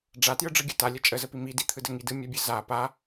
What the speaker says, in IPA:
ɖ͡ʐ a t j ɯ ɖ͡ʐ ɯ ɡʲ ɯ t a lʲ ə t͡ʃʼ ə z ə p i m i d i t̪ʰ ɯ d ə ŋ i d ɯ mʲ a bʲ ɯ z a p a

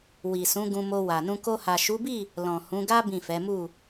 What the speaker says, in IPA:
w i˨ s ũ˨˦ ɡ ũ˧ m o˧ w a˨ n ũ˧ k o˧ h a˨ ʃ u˨˦ b i˦˨ | l ɔ̃˨ h ũ˨˦ ɡ a˦ b ĩ˦˨ f ɛ˨˦ m u˦˨

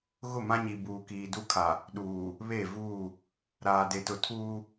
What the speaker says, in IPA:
ɣ ʊ˦˨ m ã˦ ɲ i˨ b uː˨ k iː˨ d u˦ kʰ a˨ | ɗ uː˨ | β e˦˨ v uː˦˨ | ɾ aː˨ d e˨ t ʊ˨ tʰ uː˦

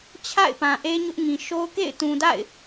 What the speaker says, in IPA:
t͡ɕʰ a̰˦˨ ɪ̯ p ã˨ ʔ e˦ ɲ ʊ˦ ʔ ŋ ĩ˨ ʃ o˦ ʊ̯ k ḛ˦˨ ɪ̯ t ũ˨ d a̰˦˨ ɪ̯

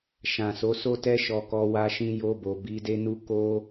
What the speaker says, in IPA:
ʃ ã˨ s o˨˦ s o˦ t ɛ˦ ʃ ɔ˧ k ɔ˧ w a˧ ʃ ĩ˧ j o˧ b o˨ b i˨˦ d e˦ n u˦ k o˦

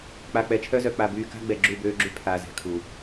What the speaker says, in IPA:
k͡p a˨ k͡p ɛ˨ t͡ʃʰ œ˦ z œ˨ k͡p a˨ b yː˨ k a̤˦ ɡ͡b ɛ˨ ɡ͡ǁ u˦˨ b øː˦ ɡ͡ǁ y˦ pʰ aː˨ z ɛ̤˨ kʰ u˨

